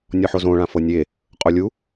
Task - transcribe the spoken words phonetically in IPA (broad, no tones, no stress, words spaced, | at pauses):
nʲɔħozõ ɭãfɤnʲe | qʼolʲu